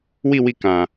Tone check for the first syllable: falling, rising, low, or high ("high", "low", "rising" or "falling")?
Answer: falling